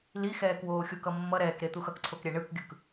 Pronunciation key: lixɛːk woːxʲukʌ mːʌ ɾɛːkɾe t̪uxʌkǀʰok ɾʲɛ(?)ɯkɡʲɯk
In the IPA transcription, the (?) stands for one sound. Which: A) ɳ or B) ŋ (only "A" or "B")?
A